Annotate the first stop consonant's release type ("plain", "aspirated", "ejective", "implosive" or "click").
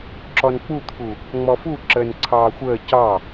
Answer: click